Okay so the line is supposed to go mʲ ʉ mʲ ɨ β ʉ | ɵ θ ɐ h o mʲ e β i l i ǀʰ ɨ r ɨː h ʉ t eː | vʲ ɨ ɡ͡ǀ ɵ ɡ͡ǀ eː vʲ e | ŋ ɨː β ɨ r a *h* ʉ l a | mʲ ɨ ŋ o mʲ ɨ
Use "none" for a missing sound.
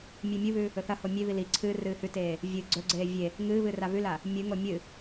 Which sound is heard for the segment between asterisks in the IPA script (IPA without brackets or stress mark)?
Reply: β